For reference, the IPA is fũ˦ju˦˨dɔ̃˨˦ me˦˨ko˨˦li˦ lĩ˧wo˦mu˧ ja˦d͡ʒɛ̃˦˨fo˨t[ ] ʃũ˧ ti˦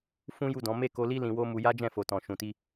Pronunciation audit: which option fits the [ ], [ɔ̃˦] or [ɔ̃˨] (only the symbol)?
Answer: ɔ̃˨